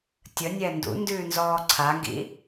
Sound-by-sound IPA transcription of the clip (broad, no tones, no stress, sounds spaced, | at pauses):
tʲ ə nʲ ɛ n d ṵ n d ʉː n z ɔː ǀʰ a ŋ ɡ ḭ